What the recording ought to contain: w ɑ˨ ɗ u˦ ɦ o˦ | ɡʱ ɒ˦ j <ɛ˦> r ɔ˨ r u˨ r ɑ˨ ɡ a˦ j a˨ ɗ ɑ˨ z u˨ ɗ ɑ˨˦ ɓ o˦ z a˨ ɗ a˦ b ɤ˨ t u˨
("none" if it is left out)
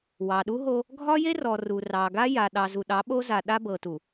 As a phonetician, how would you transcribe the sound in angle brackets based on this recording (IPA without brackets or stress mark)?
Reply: e˦